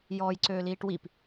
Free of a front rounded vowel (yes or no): no